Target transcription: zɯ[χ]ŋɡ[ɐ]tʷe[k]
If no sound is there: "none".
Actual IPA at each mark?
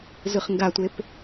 χ, a, p

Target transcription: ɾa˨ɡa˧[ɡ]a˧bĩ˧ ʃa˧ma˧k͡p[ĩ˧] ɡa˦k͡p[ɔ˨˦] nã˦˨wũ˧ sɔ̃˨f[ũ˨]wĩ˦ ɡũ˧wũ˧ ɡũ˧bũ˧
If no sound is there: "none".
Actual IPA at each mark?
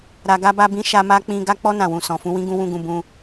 b, ĩ˧, ɔ˦, ũ˧

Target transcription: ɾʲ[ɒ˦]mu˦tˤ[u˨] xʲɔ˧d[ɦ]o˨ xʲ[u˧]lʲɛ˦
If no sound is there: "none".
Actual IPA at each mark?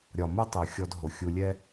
ɒ˨, u˨, ɦ, u˧

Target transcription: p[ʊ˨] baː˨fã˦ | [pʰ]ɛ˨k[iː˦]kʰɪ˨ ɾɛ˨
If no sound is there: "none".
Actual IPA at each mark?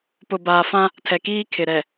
ʊ˨, tʰ, iː˦

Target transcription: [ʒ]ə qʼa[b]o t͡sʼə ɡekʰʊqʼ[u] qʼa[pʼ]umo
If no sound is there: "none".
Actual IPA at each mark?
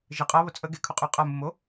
ʒ, β, y, m

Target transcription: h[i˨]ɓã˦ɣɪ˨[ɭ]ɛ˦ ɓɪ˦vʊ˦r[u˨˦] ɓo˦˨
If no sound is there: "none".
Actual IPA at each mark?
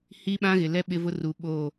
i˦, l, u˨˦

